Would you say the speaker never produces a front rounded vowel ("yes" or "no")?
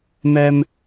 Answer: yes